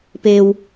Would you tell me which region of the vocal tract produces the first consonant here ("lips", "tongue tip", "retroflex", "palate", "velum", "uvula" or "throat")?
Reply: lips